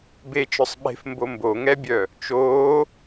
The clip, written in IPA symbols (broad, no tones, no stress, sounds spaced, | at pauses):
b e t͡ʃ œ sˤ ɓ e̤ f m b o m b o ŋ ɛ bʲ œ | t͡ʃ oː